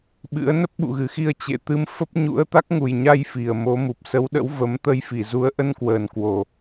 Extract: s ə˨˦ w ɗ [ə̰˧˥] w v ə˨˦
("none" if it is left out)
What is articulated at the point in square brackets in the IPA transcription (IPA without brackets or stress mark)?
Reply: ə̰˧˥